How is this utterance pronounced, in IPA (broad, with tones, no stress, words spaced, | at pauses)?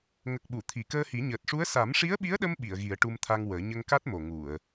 ŋə˨˩k̚ɓu˨˩˨ t̪ʰi˨˩˨kəː˧hi˨˩˦ ɲəː˨˩t̚ʂu˧˥ə̯ sa˨˩˦mʂi˧˥ə̯ɓi˧˥ə̯ɗə˧m ɓi˨˩˨ə̯ɣi˨˩˦ə̯ʈu˧mt̪ʰa˧ŋ wəː˨˩˦ ɲə˧ŋka˦˥t̚mo˨˩ ŋu˨˩˨ə̯